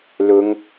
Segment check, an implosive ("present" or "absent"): absent